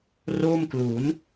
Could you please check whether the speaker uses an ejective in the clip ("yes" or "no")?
no